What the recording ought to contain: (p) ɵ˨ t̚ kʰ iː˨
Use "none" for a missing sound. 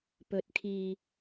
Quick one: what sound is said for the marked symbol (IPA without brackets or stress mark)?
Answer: p